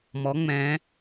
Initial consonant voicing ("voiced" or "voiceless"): voiced